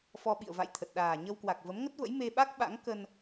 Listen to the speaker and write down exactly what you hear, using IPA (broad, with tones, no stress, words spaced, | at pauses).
fɔ˧ɓḭ˧˨ə̯ va̰˧˨j t̪ʰə˨˩t̚ ɗaː˨˩ɲə˧wkwa˨˩k̚ və˨˦mŋə˦˥t̚və̰˧˥j me˧ɓa˦˥k̚ɓa̰˧˥ŋ kə˧n